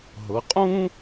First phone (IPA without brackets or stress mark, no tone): ɦ